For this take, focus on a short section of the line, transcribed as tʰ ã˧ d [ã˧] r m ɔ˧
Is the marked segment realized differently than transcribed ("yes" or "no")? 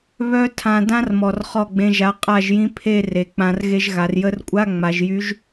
yes